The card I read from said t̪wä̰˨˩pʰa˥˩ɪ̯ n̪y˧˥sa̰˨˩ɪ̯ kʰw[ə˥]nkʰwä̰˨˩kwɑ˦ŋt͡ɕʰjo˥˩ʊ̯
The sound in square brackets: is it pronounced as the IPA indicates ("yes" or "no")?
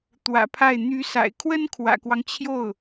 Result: yes